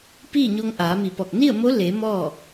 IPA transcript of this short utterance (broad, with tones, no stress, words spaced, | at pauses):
piː˥˨ɲo˧ŋʔaː˩˧mi˧˩ pɔː˧˩k̚ni˥˨ə̯mo˧˥ le˩˧ mɔː˥˨